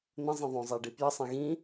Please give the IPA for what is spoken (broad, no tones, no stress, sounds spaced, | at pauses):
n̪ ə̃ zˤ ĩ ðˤ õ zˤ æ ɖ i p j ə sˤ ẽ ɣ ĩ